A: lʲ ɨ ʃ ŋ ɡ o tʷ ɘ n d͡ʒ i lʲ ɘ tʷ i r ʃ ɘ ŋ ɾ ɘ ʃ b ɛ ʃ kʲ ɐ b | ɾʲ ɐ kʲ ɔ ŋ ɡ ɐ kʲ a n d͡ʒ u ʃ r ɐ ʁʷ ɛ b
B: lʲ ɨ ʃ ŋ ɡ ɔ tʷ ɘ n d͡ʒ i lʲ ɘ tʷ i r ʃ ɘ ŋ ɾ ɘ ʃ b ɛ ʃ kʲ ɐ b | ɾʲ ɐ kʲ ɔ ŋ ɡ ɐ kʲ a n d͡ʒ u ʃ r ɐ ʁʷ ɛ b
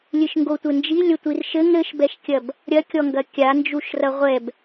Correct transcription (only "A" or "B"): A